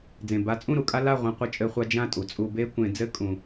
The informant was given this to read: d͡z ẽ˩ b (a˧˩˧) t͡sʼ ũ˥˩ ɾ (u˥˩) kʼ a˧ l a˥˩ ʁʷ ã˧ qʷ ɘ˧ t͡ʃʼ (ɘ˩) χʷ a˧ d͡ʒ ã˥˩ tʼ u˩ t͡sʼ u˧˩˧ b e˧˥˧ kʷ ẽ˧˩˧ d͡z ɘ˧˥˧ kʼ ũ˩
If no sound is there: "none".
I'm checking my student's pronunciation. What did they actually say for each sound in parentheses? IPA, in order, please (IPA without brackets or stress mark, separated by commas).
a˧˩˧, u˥˩, ɘ˧˩˧